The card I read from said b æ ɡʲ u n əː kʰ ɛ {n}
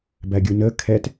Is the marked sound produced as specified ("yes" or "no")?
no